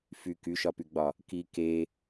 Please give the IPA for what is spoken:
f y k y ʃ ɒ p y ɡ͡b ɒ | k i k e

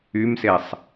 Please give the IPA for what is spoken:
y m s e sˤ

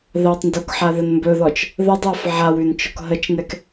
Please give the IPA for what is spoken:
ð a tˤ n d o k ħ a ð ə n m b ɵ ð ɔ t͡ʃ | ð ə dˤ ə˞ f ʕ a w ʉ n t͡ʃ ɔ k ɦ ə t͡ʃ n ɛ k

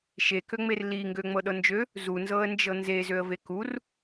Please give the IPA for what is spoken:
ʃ e k ø ŋ͡m e r l i ŋ ɡ ø ŋ͡m ɤ ɗ ɤ n d͡ʒ ø | z u n z ɤ ə̯ n d͡ʒ ɤ n z e z ø ə̯ v e k u r

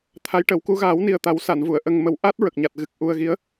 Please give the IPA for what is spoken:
t̪ʰ a˧˥ j ʈ ə˨˩˦ w k u˧˥ ɣ aː˨˩˦ w n i˨˩ ə̯ t̪ a˨˩˦ w s a˨˩˨ n v u˨˩˨ ə̯ ʔ ə˧ ŋ m ə˧ w ʔ a˦˥ t̚ ɹ ə˨˩ k̚ ɲ a˨˩ t̚ ɣ ɨ˨˩ k̚ ʔ u˧ ə̯ ɣ i˧˥ ə̯

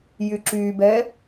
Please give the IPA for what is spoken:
j y ǁ y b ɛ

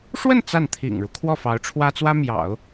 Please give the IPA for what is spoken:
ʂ w ə˥˧ n t͡s a˥˩ n t̪ʰ ḭ˨˩ ŋ ɻ u˦ kʰ w ɔ˥˩ f ɑ˧˥ ʊ̯ ʈ͡ʂʰ w ä˥ t͡s w ä˥ m j ɑ̰˨˩˦ ʊ̯

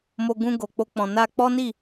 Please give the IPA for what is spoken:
m o˧ ɡ ũ˧ ɡ o˨ k͡p o˧ k͡p ɔ̃˨ n a˧ k͡p ɔ˦ n i˦˨

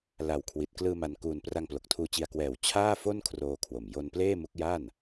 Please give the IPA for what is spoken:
l a˨˩ w kʰ w i˨˩ t̚ k l ɯː˧ m a˧ n k uː˧ n p r a˧ ŋ p l o˨˩ k̚ tʰ uː˧ t͡ɕ i˧ a̯ k w ɛː˨˩ w t͡ɕʰ aː˥˩ f o˥˩ n kʰ r oː˧ kʰ w o˨˩ m j o˧ n p l eː˥˩ m u˦˥ k̚ j a˥˩ n

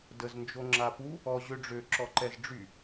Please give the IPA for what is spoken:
d ə z n d͡ʒ o ŋ͡ǁ a p u | ɔ ʑ ø ɖ͡ʐ ø ǁ ɔ ǃ ɛ z ɖ͡ʐ y

